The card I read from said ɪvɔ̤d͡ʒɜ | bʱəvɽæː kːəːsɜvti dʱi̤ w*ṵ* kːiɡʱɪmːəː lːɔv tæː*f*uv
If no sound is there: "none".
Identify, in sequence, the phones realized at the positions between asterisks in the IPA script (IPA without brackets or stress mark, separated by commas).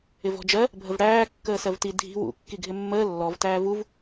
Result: ṵ, v